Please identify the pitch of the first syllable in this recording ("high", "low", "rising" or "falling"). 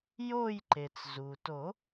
falling